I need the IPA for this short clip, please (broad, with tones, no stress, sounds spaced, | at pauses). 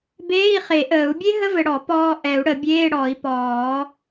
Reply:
b eː˧˥˧ i̯ χ e˨˩˦ ʔ əː˨˩˦ u̯ bʲ e˦˥ ɦ ə˧˥˧ v ɘ˨ ɽ ɔ˨˩˦ p ɔː˨ ʔ ɛ˨˩˦ u̯ ɽ ə˨˩˦ bʲ eː˧˥˧ ɽ ɔ˨˩˦ i̯ p ɔː˨˩˦